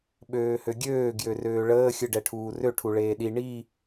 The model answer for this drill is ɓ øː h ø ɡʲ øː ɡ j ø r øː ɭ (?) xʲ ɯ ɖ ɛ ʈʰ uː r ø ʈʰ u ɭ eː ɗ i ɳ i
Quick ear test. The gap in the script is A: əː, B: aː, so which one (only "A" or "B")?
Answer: A